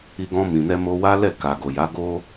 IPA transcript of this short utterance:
i˧ ɡ ɔ̃˧ m ĩ˨ n ɛ˧ m o˧ w a˦ l ɛ˦˨ k a˨ ɡ o˨ j a˨˦ ɡ o˦

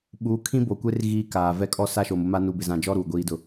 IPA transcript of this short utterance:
ɓ uː˨˦ kʰ ĩ˦ b o˨ kʷ e˦ r ɣ iː˦ k aː˨ v ɛ˦ kʼ ɔ˦ s a˦ ʃ o˨ m ʊ˦ m a˦ n u˨ b ɪ˨ z ã˨ d͡ʒ ɔ˦ ɾ uː˨ ɡʷ iː˦ d ʊ˦

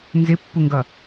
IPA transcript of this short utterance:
n z ɪ pː u ŋ ɡ ʌ

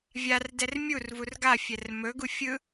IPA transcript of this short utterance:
vʲ a r d ɛ r mʲ u r v u r ɡ a fʲ ɛ r m ɵ ɡ u fʲ ɯ

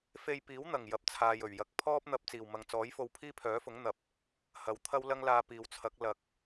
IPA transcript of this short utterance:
f e˧ j p iː˨˥ w n̪ ɐ˨˩ ŋ j ɐ˨ p̚ t͡sʰ aː˨ j ɵ˨˩ ɥ j ɐ˨˥ k̚ pʰ ɔː˥ p̚ n̪ ɐ˧ p̚ t͡s iː˨˩ w m ɐ˨ ŋ t͡s ɔː˨˥ j f o˧ w pʰ iː˥ pʰ œː˨˥ f ʊ˨˥ ŋ n̪ ɐ˨ p̚ | h ɐ˨˧ w t̪ʰ ɐ˥ w l ɐ˥ ŋ l aː˧ p iː˨ w t͡sʰ ɐ˨˥ k̚ l ɐ˨ k̚

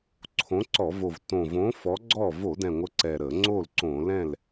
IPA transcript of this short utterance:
ǀʰ õ˨˥ ǀ ɔ˧˩˧ v o˨˩ v t õ˨˩ v õ˨˥ f ɔ˨˥ ɡ͡ǀ ɔ˥˩ v o˧˩˧ d ɛ̃˨˩ ŋʷ ə˨˥ ǀ ɛ˨˩ ɾ ə˧˩˧ ŋ͡ǀ o˥˩ l ǀ õ˧˩˧ l ɛ̃˥˩ l

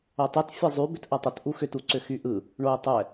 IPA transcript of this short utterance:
o tˤ y t fʲ ɛ zˤ y b ʏ t ʔ ɐ tˤ ə t ʔ u x ʏ t u ǀ ʏ x y ʔ ɯ | ɳ o ɪ̯ tˤ ɛ

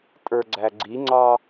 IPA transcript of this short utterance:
tʼ ə˞ ɡ͡ǀ æ ɡ͡ǀ i ŋ͡ǀ ɑ

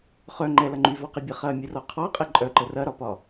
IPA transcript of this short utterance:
χ œ ŋ͡ǃ ɛ l ɐ ŋ͡ǃ y v ɔ q i bʲ ɐ χ ɐ mʲ ə r ɔ qʰ ɔ qʼ e ǃʼ œ ǃ ə r ɐ ɾ ɒ p ɒ

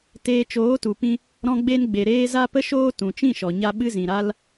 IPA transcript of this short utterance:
t eː˧ t͡ʃ oː˨˦ t u˨ p ĩ˦ | ɾ ɔ̃˧ ɡ͡b e˧ n ɡ͡b e˨ ɾ eː˧ z a˦ p ə˦ ʃ oː˦ t ũ˨ t͡ʃ ĩ˦˨ ʃ ɔ˨ ɲ a˧ ɓ ɨ˧ z ĩ˨ ɾ a˧ l

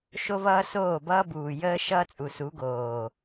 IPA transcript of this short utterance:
ʃ o˦ v ʌː˦ s oː˦˨ b ʌː˦ b uː˨ j əː˦ ʃ ʌː˦ t͡sʼ u˨ s u˨˦ ɡ oː˨

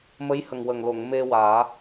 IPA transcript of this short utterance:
m ə˧˥ j h ə˨˩ ŋ w ə˨˩ ŋ l o˨˩˨ ŋ m e˧ w aː˨˩˦

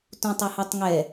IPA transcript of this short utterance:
t ũ tˤ u h ɛ tˤ ŋ ɛ

